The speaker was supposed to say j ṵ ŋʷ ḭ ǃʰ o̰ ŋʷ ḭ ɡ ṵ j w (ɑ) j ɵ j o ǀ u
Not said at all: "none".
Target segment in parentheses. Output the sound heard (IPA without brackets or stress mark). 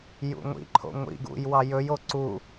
ɑ